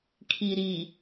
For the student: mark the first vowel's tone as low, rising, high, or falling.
low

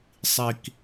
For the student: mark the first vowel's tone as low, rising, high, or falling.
low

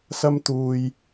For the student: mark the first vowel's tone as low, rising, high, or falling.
high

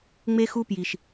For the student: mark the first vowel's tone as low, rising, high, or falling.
high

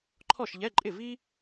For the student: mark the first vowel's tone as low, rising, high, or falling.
falling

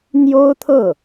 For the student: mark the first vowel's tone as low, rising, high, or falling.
high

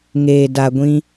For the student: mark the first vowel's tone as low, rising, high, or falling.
low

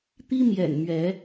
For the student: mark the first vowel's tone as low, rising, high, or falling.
high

